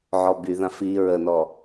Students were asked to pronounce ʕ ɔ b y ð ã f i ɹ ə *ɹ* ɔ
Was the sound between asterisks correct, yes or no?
no